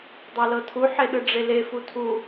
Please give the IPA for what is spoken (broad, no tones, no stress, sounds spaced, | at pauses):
dˤ a l ɤ tʰ u ħ e ɗ ɯ ɖ͡ʐ e l e f u tʰ u